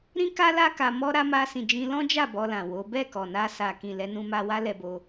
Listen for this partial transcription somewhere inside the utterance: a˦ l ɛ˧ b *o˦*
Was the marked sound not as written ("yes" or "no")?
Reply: yes